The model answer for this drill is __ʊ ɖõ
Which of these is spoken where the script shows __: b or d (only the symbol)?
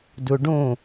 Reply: d